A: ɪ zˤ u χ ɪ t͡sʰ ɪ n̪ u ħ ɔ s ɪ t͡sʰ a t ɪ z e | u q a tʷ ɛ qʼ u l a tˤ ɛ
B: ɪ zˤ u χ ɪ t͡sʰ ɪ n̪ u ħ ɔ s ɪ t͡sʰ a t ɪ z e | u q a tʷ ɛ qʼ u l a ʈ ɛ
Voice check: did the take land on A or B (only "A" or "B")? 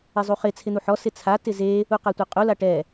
B